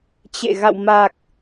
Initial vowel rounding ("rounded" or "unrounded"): unrounded